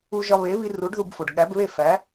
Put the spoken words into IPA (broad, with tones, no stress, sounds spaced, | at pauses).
u˧ ʒ ɒ˧ β e˩˥ β i˧ r u˩˥ ɖ ð u˧ b f o˩ ɖ ɠ æ˩˥ b β e˥˩ f æ˩˥